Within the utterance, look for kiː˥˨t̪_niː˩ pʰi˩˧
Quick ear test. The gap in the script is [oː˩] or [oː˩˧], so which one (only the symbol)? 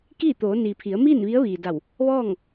oː˩˧